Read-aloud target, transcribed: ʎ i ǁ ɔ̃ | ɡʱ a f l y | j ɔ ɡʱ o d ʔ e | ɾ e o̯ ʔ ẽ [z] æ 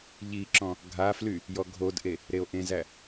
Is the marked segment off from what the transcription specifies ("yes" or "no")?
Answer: no